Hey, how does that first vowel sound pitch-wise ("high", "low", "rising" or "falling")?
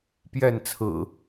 falling